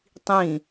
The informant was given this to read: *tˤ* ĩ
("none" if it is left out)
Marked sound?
tˤ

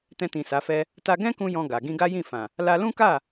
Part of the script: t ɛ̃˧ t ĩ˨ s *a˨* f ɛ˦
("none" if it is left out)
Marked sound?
a˨˦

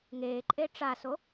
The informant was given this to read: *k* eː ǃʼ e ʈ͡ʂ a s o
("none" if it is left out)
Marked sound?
ŋ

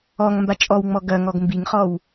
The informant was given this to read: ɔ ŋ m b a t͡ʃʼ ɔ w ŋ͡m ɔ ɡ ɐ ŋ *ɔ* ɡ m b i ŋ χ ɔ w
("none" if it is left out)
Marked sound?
ɔ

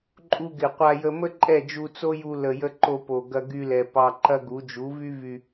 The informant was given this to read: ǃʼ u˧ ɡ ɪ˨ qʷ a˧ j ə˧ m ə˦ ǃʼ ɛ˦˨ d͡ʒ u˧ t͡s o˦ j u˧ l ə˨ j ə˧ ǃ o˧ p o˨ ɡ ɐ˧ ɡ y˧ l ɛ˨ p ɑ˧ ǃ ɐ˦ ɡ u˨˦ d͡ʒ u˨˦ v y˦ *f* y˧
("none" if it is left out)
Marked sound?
v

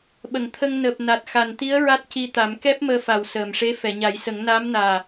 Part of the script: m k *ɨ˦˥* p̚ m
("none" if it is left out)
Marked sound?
ɛ˦˥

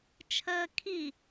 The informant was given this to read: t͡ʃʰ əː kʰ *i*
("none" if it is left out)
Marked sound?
i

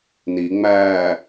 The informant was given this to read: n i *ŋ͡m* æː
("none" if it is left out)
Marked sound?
ŋ͡m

